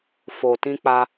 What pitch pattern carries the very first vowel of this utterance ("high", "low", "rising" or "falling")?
low